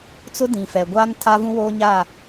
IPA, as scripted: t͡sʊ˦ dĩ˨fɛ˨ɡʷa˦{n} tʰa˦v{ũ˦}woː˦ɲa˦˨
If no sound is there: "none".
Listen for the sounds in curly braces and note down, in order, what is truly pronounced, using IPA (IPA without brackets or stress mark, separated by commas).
n, ũ˦